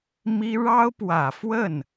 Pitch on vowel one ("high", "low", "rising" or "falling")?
high